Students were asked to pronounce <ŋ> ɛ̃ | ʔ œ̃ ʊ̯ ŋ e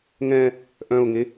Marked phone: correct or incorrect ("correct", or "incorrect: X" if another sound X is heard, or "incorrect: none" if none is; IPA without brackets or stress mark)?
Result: correct